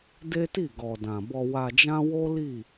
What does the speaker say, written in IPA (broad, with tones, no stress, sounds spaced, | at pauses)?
d e˦ t i˦˨ ɡ ɔ˨ d ã˨ b ɔ˧ w a˧ d͡ʒ ã˦ w o˦ l i˦˨